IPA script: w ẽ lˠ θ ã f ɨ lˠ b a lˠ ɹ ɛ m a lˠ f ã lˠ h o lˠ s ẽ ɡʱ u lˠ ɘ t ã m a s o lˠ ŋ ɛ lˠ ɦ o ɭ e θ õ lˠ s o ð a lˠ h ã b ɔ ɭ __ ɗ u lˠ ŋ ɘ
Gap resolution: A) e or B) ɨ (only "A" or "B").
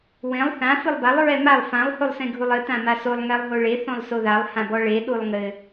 A